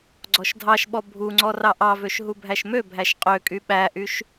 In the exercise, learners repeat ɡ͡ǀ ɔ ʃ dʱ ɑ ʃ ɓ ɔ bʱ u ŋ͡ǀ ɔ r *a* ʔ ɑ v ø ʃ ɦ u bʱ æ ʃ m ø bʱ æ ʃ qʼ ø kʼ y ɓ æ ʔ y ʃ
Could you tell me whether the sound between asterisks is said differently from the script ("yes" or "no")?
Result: yes